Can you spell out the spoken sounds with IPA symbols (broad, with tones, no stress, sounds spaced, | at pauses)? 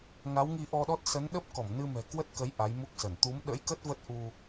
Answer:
ŋ a˨˦ w ŋ i˧ ʔ ɔ˧ ɗ ɔ˦˥ t̚ s ə˨˦ n ɗ ə˦˥ p̚ k ɔ˧˩ m n ɨ˧ m ɛ̤˨˩ k w ə˦˥ t̚ k ə˨˦ j ʔ a˨˦ j m u˦˥ k̚ s ə˧˩ n t̪ u˨˦ m ɗ ə̰˧˥ j k ə˦˥ t̚ v ə˦˥ t̚ ʔ u˧